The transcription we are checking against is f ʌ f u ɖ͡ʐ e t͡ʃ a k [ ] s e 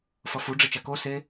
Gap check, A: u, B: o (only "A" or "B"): B